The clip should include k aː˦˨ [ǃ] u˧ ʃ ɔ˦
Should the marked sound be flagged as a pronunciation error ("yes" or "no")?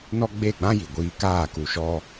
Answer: yes